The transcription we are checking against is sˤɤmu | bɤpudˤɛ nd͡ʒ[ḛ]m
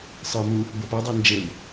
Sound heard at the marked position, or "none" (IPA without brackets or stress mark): e